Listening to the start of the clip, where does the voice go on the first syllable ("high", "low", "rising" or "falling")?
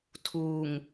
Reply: low